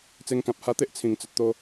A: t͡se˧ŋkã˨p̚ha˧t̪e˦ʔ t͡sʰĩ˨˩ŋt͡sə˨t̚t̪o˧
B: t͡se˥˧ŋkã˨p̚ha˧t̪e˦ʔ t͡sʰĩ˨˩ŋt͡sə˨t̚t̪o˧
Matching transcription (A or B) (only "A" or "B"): A